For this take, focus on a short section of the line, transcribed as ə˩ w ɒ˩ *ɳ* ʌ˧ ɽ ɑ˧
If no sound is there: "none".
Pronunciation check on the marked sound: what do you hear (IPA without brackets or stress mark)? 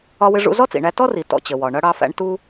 ɳ